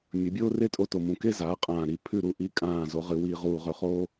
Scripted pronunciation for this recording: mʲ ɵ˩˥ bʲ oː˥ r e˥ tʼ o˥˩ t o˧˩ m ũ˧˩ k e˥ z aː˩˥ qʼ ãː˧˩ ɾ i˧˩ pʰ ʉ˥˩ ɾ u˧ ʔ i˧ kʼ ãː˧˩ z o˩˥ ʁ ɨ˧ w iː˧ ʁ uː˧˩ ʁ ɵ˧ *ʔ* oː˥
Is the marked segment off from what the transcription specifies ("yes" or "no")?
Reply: yes